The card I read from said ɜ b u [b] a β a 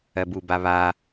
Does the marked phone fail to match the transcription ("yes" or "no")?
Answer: no